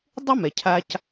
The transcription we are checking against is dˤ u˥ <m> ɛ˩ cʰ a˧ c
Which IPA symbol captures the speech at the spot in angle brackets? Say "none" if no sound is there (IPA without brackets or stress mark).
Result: m